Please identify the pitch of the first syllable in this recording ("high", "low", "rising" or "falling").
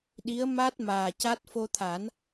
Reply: rising